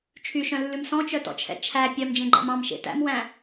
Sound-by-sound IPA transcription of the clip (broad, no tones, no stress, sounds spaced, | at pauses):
t͡ʃʰ y ʃ œ̃ lː ʉ m s ɔ̃ t͡ʃ œ t ɔ̰ t͡ʃʰ ɛ̰ t͡ʃʰ æ pʲ œ m d͡ʒ ẽ ɡ͡ǃ æ̰ m ɑ̃ m ʃ ḛ t æ̰ m w æ̃